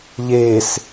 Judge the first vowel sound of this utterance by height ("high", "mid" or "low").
mid